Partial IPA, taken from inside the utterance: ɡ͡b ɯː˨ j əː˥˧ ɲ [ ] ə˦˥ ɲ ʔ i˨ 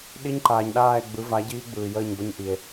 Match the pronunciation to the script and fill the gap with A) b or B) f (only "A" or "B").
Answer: A